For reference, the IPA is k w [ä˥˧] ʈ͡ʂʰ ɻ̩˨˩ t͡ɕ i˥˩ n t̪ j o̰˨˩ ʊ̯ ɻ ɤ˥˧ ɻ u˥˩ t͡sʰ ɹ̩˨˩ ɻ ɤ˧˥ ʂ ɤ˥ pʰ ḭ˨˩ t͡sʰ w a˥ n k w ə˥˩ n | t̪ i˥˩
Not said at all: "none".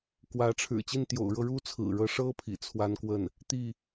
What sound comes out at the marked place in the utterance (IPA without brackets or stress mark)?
ä˧˥